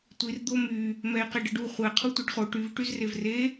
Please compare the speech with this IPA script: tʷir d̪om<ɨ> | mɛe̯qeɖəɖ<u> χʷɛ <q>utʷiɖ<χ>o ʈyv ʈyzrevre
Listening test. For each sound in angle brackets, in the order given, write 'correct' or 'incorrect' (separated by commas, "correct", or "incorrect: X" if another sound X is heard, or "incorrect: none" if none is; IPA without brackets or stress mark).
incorrect: y, correct, incorrect: qʰ, correct